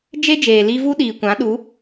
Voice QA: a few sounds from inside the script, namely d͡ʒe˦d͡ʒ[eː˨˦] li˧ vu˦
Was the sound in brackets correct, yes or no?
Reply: no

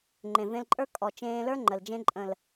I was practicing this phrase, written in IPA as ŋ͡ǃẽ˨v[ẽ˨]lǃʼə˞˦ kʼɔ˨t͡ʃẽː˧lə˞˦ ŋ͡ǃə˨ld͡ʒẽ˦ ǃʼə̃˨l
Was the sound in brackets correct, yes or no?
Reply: no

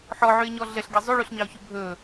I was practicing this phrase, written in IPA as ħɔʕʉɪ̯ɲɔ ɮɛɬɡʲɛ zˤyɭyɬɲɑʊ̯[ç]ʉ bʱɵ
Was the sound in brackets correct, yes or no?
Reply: yes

